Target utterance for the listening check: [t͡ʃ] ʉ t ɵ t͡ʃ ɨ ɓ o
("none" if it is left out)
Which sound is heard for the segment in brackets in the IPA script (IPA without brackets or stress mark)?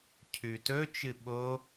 cʰ